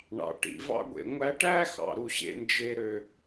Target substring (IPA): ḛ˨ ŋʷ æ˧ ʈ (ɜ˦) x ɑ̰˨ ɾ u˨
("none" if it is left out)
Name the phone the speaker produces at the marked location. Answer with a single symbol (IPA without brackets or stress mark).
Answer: æ˦